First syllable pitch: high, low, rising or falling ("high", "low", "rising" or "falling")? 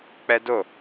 high